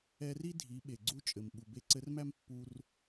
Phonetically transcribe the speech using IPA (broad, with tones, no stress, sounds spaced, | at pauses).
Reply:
ɛ˧ r i˥ dʱ i˩˧ ɓ e˩ ɡ͡ǀ u˧˥ t͡ʃʼ ɘ˩ m ɓ u˩ b e˧ ǀ ɘ˧˥ r m æ˥ m pː u˧ r